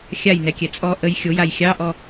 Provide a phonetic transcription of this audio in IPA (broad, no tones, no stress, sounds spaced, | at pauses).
xʲ a j n ɛ kʲ ɛ t͡sʼ ɔ ʔ ə j xʲ o j a j xʲ ɑ ʔ ɔ